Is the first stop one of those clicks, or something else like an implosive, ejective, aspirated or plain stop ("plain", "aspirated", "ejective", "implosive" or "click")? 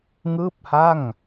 plain